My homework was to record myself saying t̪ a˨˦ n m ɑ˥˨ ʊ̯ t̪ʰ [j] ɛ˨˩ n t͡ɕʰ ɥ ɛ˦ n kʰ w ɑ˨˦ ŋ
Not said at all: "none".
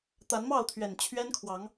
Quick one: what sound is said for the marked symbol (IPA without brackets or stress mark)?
ɥ